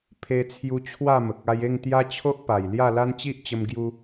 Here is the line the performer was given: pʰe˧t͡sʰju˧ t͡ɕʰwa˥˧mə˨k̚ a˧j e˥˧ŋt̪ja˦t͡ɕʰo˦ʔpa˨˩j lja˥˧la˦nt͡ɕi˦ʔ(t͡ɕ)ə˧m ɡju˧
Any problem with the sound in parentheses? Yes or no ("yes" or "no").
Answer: no